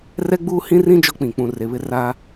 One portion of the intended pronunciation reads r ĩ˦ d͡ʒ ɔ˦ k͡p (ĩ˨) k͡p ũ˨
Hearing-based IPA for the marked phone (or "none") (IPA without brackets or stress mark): ĩ˨